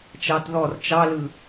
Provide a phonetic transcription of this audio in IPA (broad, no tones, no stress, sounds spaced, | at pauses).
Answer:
t͡ʃ ɑ t ð ɔ r t͡ʃ ɑ l ɯ